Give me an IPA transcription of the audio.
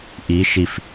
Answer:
ʔ i ʃ i f

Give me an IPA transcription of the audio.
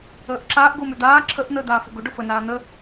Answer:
əː ʔ ǁ aː ʔ ɡ ʊː m ø d̪ aː ǁʰ ə ʔ n̪ əː d̪ aː f ʊ ɡ ʊ ɖ ʊ f ə n aː n̪ ə

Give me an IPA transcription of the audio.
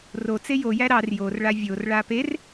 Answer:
r o t͡s e j o j æ ɾ ɑ r j o r ɭ a vʲ o r ɭ a p e r

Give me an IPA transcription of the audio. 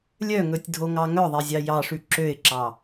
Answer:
lʲ œ ŋ ɵ tʲ dʱ o ŋ ɑ ŋ œ ðˤ e zʲ ɑ j ɑ ʂ ʉ ǁ ø ɪ̯ ǁ ɑ

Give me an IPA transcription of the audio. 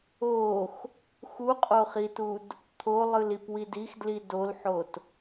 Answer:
o x | x u qʼ o χ i t u d | t̪ʰ o lˠ ɯ l i p w i d i x d l i d o l ħ o t

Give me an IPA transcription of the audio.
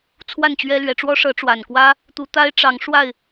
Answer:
t͡sʰ w a˥˨ n t͡ɕ ɥ ɛ˦ l ɥ ɛ˨˦ ʈ͡ʂ w ɔ˦ ʂ ɤ˨˦ ʈ͡ʂ w a˨˩ n k w ä˦ | t̪ u˨˦ t̪ a˦ ɪ̯ ʈ͡ʂ ɑ˨˦ ŋ ʂ w a˥˨ ɪ̯

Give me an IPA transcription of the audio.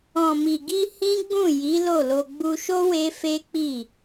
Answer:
ɔ̃˨ m i˨ ɡ i˧ h ĩ˦ ɡ͡b ũ˦˨ j i˨˦ l o˦˨ l o˧ ɡ͡b u˧ ʃ o˦ w e˦ f e˦ k͡p i˦˨

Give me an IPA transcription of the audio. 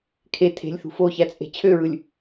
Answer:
kʰ e tʰ e̤ lʲ θ ṳ f o ç æ t͡sʼ e̤ t͡ɕʰ ø ɹ ɯ lʲ

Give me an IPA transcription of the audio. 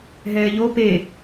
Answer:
ɦ ɛː ʎ o p e

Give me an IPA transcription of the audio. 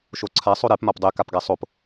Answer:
ʃ o ǀʰ a sˤ o ɾ e p m a p dˤ e k a p ɡ a sˤ o p

